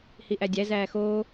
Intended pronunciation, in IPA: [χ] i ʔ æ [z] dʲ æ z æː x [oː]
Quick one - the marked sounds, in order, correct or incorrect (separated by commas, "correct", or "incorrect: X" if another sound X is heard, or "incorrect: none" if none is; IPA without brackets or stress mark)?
incorrect: h, incorrect: none, correct